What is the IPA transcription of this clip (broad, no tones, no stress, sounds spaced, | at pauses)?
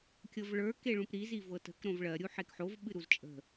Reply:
kʲ ɤ v ɭ ə˞ k e ɭ ũ p ɾ i z i v ɤ t ə̤ k ɾ õ v ɭ ɜ ɾʲ u ħ e k ħ o v ɓ ɨ ɾ u z t͡ʃʼ ə̤